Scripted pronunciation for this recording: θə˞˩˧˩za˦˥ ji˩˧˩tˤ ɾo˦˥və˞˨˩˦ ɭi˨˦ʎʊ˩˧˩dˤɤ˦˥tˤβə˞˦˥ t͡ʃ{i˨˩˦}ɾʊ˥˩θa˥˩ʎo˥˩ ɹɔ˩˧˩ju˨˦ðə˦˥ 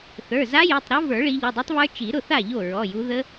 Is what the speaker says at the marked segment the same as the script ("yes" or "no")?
yes